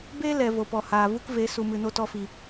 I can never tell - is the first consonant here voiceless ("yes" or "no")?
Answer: no